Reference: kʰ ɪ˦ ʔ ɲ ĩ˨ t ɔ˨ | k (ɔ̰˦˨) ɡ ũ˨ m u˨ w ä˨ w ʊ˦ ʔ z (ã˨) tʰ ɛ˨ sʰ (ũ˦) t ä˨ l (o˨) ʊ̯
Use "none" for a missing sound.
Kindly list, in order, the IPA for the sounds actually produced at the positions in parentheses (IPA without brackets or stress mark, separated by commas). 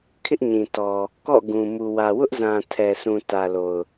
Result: ɔ̰˦˨, ã˨, ũ˨, o˨